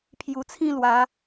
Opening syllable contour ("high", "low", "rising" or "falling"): low